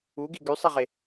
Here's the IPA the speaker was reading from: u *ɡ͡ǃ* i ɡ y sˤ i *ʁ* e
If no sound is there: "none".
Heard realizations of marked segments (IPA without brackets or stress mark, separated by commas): ɡ, ʁ